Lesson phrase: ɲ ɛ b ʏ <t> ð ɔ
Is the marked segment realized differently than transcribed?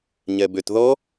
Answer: no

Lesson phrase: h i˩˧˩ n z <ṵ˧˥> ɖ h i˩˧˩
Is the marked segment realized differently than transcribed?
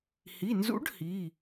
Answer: no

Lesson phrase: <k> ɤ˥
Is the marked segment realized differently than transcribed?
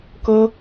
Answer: no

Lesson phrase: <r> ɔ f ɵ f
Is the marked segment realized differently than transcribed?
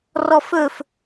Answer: no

